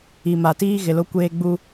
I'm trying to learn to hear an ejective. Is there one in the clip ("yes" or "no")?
no